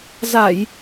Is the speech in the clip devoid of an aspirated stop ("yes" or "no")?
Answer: yes